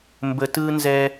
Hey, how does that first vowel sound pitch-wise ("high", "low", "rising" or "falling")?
low